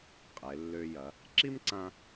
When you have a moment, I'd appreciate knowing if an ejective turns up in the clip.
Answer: yes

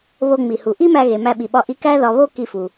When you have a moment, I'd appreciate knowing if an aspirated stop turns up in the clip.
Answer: no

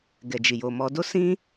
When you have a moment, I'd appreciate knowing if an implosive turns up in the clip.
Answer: no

